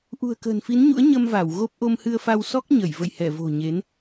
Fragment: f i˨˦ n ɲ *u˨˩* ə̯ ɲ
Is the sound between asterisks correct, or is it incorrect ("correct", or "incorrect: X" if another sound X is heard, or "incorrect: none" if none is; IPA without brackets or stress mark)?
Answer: incorrect: ṵ˧˥